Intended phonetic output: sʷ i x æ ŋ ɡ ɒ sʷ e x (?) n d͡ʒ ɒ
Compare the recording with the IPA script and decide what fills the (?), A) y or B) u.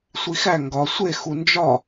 B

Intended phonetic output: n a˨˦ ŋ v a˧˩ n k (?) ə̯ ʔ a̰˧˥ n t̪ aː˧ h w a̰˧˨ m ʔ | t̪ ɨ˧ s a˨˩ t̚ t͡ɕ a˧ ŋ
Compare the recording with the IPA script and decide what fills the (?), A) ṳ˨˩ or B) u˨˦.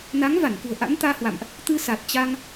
A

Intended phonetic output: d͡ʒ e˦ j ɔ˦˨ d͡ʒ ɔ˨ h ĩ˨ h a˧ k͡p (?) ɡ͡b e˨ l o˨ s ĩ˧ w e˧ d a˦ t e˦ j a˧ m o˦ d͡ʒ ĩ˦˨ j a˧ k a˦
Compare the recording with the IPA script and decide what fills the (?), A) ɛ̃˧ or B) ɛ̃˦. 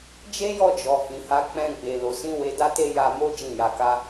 A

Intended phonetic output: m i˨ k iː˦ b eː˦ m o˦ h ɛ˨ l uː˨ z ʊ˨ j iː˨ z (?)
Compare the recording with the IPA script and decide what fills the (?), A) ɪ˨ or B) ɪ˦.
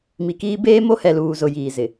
A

